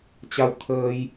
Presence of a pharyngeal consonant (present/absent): absent